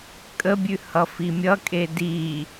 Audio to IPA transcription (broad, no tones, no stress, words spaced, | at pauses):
kʼəbʲʉ hʌfimʲʌkʼe di